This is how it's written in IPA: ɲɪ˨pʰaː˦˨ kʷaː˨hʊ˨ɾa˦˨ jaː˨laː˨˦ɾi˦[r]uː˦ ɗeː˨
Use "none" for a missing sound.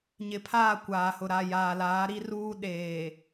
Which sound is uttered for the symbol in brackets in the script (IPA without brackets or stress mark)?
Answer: r